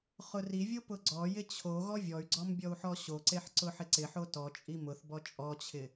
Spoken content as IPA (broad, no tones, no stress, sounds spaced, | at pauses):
χ ʊ r i vʲ o p ʊ ɡ͡ǀ ɔ j ɪ t͡ɕʰ o ɣ ɔ vʲ ɔ y̯ ɡ͡ǀ ɔ m bʲ ɔ u̯ ħ ɔ ɕ o ǀ e ħ ǀ ʊ ħ ɪ ǀ ɪ ħ o t ɔ t͡ʃʼ i m ʊ θ b ɔ t͡ʃʼ ɔ t͡ɕʰ ɪ